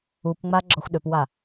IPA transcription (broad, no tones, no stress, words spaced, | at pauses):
upŋ͡ma ɡ͡ǁɔxʷɗøpwa